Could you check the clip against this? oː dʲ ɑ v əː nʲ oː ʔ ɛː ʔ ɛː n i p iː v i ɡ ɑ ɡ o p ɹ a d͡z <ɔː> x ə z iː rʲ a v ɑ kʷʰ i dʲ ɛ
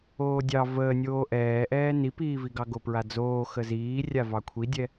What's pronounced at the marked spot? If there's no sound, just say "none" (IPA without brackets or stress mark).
oː